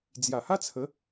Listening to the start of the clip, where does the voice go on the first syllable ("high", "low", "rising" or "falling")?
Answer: low